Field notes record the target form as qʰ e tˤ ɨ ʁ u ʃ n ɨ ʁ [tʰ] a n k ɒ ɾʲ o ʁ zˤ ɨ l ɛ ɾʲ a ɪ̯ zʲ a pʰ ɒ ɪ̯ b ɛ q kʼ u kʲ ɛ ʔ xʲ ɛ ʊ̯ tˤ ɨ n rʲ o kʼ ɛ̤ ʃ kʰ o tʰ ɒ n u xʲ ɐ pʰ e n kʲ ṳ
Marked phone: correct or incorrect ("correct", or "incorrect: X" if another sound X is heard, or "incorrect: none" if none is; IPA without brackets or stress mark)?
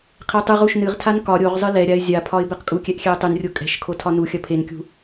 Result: correct